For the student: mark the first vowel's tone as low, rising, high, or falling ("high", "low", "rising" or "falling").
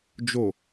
low